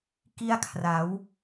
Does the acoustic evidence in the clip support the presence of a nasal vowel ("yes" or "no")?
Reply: no